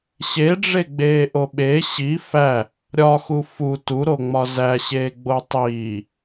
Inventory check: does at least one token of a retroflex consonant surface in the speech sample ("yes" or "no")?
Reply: yes